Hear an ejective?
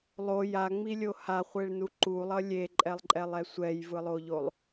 yes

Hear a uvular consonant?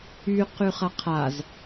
yes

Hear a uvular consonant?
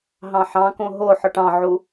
no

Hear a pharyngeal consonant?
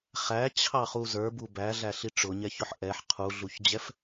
yes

